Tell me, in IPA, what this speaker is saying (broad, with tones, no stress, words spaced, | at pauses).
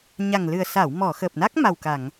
ɲa˨˩ŋlɨ˨˩ə̯sa˨˩˨w mɔ˨˩˨xəː˨˩p̚na˦˥k̚ ma˨˩wka˨˩˨ŋ